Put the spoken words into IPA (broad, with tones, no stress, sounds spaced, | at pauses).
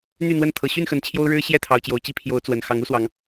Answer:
n̪ y˥˨ n̪ w ə˥˨ n t̪ʰ ɤ˨˦ ɕ y˥˨ n x ə˨˦ n t͡ɕʰ j o˦ ʊ̯ ɻ ɻ̩˦ ɕ j ɛ˥˨ t̪ʰ ɑ˨˦ ʊ̯ t͡ɕ j o˨˦ ʊ̯ t͡ɕ i˦ pʰ j o˨˦ ʊ̯ t͡s w ə˨˩ n x ɑ˨˦ ŋ u˦ s w ɑ˨˦ ŋ